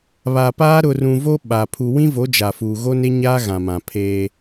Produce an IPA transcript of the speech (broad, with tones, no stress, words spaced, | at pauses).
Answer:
βa˨paː˦ ɾʊ˨rũ˨ vo˦ ɓa˨ pʰu˨wĩ˦vo˨˦ d͡ʒa˨ fuː˨ɣo˦ne˦ ɲaː˦ ɣã˨mã˨pʰeː˦